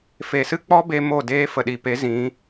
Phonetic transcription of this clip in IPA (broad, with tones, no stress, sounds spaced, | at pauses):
f e˨ s ɨ˦ k͡p ɔ˦ b e˧ m o˦˨ d eː˦ f ə˨ ɗ i˨ p e˨˦ z ĩ˨˦